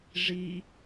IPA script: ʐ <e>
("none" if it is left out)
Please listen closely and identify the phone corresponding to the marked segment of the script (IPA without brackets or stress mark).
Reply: i